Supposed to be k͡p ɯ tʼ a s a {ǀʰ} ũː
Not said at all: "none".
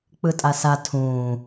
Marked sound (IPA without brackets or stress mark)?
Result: tʰ